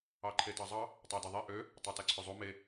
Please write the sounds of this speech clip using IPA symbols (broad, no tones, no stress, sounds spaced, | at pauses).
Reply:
ɑ ǃʰ e t ɑ zˤ ɑ | tˤ æ d e ðˤ e ʔ ø | tˤ ɑ t æ ǀʰ ø zˤ o m e